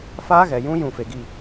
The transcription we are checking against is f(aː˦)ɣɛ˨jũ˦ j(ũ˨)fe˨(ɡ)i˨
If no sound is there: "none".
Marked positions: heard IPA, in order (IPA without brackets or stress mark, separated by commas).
aː˦, ũ˦˨, ɡ